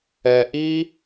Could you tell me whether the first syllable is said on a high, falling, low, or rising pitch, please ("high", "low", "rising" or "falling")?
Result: low